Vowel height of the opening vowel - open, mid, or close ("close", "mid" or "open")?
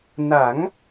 open